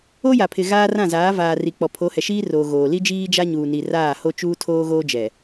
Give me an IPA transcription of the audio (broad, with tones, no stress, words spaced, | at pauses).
o˦ja˨pʰɪ˨ ɣaː˦rã˦˨zaː˨˦ vaː˨ ri˨k͡pɔ˨pʰo˨˦ hɛ˨ʃiː˦roː˨ ɣoː˨ li˦d͡ʒiː˦ d͡ʒa˦ ɲuː˨ni˨raː˦˨ ho˦t͡ʃuː˦tʰoː˦ ɣoː˦d͡ʒɛ˨